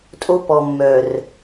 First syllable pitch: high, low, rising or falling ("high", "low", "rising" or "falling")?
high